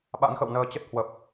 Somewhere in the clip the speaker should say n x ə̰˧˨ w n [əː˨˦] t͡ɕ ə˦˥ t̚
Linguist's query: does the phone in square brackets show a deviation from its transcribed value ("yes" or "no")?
yes